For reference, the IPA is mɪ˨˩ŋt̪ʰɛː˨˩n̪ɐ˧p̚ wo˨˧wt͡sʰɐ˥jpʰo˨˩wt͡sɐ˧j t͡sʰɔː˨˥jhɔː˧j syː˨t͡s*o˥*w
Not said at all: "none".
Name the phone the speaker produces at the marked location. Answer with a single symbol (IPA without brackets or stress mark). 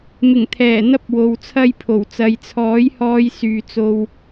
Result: o˧